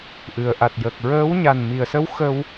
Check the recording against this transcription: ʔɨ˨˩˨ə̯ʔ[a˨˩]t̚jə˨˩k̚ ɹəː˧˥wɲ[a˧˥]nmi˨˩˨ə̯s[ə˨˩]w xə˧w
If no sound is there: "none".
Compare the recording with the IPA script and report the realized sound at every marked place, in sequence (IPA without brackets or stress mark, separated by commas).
a˨˩, a˨˩, ə˧˥